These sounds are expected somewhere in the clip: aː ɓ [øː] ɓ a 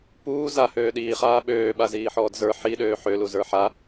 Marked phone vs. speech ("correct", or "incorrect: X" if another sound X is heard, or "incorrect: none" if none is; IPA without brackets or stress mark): correct